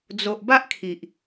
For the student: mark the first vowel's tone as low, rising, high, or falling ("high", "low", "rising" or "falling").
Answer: low